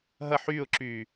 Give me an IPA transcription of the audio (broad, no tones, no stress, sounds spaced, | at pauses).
ɦ ɐ ħ yː ʊ̯ ǁ yː